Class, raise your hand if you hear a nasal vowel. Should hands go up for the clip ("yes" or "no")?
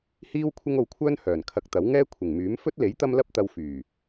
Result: no